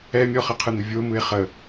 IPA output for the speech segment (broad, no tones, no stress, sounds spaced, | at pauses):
ɛ mʲ ɔ χ ə qʰ ɯ n̪ ə vʲ o m ɯ e̯ χ ə